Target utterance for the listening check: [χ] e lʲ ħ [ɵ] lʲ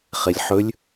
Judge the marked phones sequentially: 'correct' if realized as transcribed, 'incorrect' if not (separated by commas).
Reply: correct, correct